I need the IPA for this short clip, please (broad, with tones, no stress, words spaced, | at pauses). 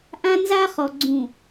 ʔã˦nza˦χɔ˨ ɡ͡ǀũ˨